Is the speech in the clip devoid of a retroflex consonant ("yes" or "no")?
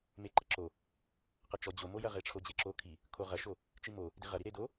no